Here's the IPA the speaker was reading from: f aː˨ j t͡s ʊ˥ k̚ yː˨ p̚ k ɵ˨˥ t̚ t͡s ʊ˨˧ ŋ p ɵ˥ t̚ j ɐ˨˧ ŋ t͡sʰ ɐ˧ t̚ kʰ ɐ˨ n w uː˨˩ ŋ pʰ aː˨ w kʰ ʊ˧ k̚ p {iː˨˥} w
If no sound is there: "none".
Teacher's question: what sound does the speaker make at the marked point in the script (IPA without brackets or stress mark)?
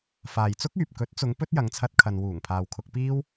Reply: iː˥